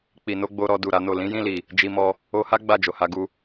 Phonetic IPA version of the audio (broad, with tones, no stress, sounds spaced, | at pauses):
k͡p i˨ n o˨˦ ɡ͡b o˧ ɾ ɔ˧ d u˨ ɾ a˨˦ n o˦˨ l ĩ˨˦ j ĩ˦˨ l i˨ | d͡ʒ i˧ m ɔ˧ | o˧ h a˦ ɡ͡b a˦˨ d͡ʒ o˨ h a˧ ɡ u˧